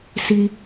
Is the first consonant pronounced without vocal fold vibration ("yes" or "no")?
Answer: yes